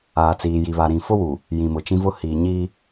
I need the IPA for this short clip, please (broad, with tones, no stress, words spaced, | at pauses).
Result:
aː˨t͡siː˨ji˨βa˨ ɾĩ˨fʊ˦wu˨ | jĩ˨mʊ˨t͡ʃĩ˦vʊ˦ hiː˨ɲiː˦